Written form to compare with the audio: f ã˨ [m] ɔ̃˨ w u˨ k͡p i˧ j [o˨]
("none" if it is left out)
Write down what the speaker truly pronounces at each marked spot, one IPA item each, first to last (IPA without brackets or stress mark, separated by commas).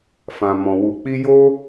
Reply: m, o˦